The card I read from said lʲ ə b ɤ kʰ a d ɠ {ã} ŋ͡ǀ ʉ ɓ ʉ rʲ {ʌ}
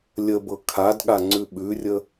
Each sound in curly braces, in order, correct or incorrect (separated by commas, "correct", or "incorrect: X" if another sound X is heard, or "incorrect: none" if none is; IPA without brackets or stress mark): incorrect: a, incorrect: ə